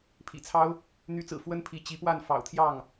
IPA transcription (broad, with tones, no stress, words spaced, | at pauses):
pʰḭ˨˩t͡sʰɑ˥ʊ̯ | n̪y˧˥t͡sɹ̩˨˩ fwə˥npʰi˧˥ t͡ɕi˧˥pwa˥˩nfɑ̰˨˩ʊ̯ t̪ʰjɑ˥˩ŋ